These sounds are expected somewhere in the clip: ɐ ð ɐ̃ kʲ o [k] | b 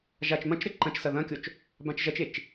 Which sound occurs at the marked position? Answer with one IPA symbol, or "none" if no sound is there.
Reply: t͡ʃ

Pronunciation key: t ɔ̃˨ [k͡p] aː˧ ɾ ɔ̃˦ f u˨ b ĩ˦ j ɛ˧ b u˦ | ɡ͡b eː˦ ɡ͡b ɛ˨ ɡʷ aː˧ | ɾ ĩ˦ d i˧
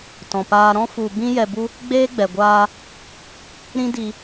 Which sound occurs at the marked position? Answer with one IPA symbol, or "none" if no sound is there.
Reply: p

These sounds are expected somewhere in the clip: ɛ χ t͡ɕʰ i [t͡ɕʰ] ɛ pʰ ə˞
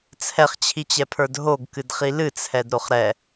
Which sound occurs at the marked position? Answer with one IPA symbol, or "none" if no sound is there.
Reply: t͡ɕ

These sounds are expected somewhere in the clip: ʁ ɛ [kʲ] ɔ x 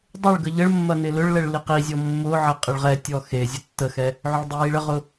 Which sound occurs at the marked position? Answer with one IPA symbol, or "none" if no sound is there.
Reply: tʲ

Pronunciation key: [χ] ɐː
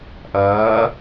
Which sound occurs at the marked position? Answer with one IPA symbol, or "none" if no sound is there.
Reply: ʔ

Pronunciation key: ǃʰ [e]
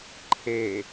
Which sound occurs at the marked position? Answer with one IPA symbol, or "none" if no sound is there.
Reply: e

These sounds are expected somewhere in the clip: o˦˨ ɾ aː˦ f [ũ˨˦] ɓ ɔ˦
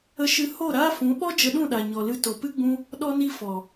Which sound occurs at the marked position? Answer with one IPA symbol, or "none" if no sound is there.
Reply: ũ˨˦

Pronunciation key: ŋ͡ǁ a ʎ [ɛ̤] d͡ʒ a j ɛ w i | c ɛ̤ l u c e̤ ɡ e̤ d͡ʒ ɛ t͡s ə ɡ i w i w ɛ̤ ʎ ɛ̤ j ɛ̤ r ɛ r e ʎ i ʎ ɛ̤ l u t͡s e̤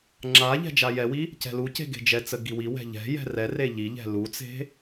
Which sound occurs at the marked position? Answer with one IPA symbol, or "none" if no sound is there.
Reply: ɛ̤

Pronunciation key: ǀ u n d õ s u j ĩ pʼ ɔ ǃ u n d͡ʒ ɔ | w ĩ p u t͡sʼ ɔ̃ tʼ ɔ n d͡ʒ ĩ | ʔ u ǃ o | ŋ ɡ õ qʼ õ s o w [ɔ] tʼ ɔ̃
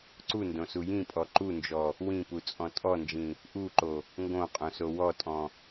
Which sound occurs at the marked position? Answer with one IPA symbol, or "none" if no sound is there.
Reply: ɔ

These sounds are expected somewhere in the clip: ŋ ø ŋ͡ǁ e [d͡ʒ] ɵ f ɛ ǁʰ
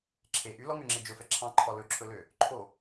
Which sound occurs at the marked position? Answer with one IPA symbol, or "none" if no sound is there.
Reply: d͡ʒ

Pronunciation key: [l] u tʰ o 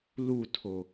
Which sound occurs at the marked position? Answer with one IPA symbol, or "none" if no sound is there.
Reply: l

